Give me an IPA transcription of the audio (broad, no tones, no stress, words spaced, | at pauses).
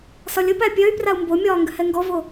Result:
sɒlʲəpæ pʲœy̯ prau̯mbomʲɒː ŋɡʏhɛŋɡɔvo